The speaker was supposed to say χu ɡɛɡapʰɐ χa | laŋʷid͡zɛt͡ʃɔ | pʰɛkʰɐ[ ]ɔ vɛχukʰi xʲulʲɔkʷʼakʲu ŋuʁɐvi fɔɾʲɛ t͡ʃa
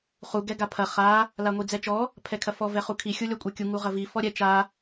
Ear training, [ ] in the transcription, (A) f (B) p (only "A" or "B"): A